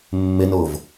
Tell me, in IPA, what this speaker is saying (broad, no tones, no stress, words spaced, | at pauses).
mːɪnʊːv